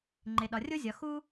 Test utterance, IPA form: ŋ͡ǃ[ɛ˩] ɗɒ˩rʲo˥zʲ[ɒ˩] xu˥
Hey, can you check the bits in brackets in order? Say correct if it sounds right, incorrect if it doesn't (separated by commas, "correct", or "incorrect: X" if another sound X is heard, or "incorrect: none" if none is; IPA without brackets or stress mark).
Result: incorrect: e˩, correct